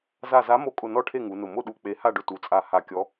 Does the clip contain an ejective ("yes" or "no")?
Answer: yes